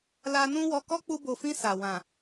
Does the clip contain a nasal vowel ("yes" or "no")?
yes